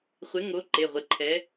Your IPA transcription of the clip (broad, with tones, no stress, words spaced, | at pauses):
χʷɪ˨˥ŋo˨˥ ǃe˩˧˩ʁʷɪ˩˧˩ ǃʰɛ˨˥